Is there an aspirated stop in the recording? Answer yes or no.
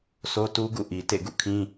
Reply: yes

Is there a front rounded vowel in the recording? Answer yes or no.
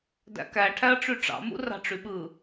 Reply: yes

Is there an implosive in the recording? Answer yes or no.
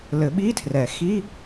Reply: yes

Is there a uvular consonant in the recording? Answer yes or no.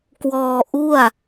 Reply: no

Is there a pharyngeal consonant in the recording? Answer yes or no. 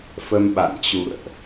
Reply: no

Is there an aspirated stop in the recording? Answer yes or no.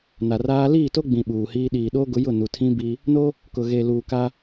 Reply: yes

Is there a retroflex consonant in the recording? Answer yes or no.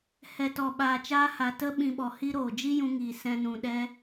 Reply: no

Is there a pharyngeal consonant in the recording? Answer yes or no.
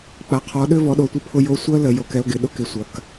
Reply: no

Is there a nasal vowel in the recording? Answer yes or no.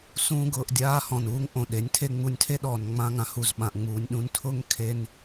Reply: yes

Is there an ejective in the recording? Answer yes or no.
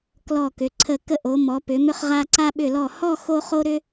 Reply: no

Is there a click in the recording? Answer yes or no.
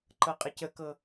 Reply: yes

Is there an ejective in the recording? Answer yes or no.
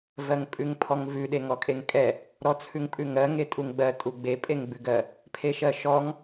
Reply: yes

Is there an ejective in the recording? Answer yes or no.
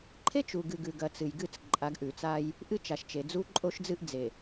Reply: yes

